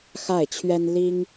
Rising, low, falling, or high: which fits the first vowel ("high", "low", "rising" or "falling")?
falling